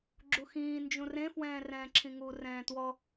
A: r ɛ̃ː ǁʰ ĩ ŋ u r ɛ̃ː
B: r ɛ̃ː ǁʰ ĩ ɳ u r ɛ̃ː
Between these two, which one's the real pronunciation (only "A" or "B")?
A